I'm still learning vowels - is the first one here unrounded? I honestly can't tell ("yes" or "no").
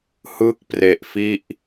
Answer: yes